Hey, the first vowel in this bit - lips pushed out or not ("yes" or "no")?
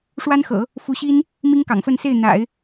no